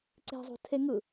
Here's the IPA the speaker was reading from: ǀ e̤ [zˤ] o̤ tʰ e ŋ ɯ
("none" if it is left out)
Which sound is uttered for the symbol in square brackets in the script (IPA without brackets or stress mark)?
zˤ